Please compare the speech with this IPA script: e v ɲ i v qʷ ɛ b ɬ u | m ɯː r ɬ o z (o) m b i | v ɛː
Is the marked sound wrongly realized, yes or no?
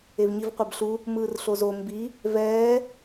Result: no